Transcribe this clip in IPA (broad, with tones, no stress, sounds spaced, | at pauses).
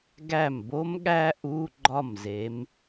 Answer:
ɡ æ˥˩ m b o˦˥ m ɠ æ˦˥ ʔ u˧˥˧ ɡ͡ǃ ɒ˥˩ m z e˨˦ m